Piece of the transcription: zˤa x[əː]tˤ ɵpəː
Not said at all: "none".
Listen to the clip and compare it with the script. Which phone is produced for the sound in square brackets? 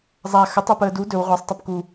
ə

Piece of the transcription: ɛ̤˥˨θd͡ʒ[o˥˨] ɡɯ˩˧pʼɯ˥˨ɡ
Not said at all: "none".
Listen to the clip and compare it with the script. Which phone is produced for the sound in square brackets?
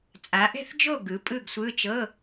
o˥˨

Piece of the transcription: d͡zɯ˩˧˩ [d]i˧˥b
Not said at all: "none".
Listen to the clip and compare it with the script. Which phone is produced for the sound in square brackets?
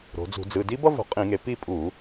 d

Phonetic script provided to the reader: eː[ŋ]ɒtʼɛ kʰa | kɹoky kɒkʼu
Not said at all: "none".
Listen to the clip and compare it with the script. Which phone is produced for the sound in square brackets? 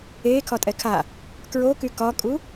kʰ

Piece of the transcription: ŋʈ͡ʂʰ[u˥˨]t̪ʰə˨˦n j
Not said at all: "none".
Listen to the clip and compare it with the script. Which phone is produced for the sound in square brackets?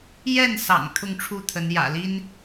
u˥˨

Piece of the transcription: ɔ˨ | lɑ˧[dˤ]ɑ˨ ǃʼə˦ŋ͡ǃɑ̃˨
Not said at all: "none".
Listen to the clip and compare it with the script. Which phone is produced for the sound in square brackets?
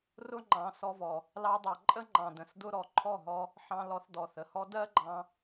dˤ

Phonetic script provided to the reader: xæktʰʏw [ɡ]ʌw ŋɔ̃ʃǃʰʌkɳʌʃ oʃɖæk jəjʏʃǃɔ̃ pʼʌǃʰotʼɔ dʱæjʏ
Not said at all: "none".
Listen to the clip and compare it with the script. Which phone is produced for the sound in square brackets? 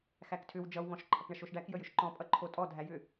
d͡ʒ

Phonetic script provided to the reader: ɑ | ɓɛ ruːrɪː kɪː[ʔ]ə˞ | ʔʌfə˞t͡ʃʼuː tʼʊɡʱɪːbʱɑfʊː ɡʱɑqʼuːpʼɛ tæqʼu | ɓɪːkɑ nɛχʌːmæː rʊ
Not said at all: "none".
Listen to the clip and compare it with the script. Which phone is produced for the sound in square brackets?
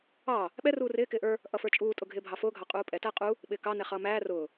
ʔ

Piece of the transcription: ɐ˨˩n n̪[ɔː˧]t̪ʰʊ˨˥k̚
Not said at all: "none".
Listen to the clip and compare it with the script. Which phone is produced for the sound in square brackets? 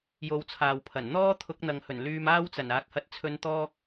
ɔː˥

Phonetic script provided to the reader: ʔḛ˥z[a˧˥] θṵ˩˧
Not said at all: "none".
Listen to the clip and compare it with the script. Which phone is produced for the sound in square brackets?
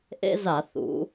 a˧˩˧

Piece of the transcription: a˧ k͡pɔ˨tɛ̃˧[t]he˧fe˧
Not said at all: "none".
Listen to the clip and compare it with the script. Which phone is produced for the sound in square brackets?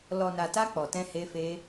none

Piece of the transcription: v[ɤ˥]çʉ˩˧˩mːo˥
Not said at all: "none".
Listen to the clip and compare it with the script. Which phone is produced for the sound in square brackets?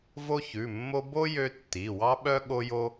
o˥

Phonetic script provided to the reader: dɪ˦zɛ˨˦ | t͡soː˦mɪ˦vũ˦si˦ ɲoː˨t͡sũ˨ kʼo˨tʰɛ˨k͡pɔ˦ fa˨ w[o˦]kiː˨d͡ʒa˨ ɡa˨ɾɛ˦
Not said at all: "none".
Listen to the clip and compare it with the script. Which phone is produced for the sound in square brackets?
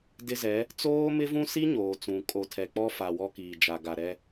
ɔ˦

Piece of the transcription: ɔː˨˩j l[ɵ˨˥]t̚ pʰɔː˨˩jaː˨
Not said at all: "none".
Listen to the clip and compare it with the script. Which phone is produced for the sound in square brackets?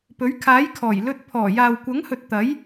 ɵ˥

